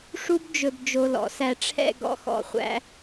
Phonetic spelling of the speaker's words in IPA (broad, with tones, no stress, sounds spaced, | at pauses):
ʂ u˥ b d͡ʒ ɵ˧ b d͡ʒ o˧ l ɔ̰˩˧ s æ˧ ʈ͡ʂʰ ɛ̰˥˧ ɡ ɔ̰˧˩ x ɔ̰˧˩ χʷ æ̰˧